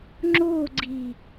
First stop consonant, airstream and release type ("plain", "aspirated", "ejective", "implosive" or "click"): click